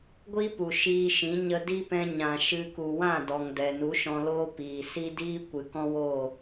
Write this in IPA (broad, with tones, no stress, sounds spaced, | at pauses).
ɡʷ iː˦ p u˨ ʃ iː˧ ʃ ĩ˨˦ ɲ ə˧ d i˦ p ɛ̃˧ ɲ ã˨ ʃ ɨ˧ k u˨ w ã˦˨ d ɔ˨ ŋ d ɛ˨ n u˨˦ ʃ ɔ̃˧ l oː˦ p iː˨ s i˦ d iː˦ kʷ ɨ˨ k ɔ̃˦ w o˦˨